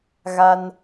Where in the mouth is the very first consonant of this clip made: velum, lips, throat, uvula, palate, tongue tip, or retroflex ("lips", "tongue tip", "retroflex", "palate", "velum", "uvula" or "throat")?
velum